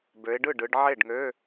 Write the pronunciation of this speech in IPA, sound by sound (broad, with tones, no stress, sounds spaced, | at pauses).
b ø˨˦ ɪ̯ ɖ ɯ˥˩ ɖ ɯ˨˦ ɖ ʕ e˥˩ ɖ ŋ ø˧˥˧